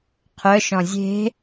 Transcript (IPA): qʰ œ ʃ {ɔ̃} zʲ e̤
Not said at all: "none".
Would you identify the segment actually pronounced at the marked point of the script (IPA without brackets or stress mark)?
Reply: ɔ̃